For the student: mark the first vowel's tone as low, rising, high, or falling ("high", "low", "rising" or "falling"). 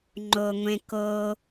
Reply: low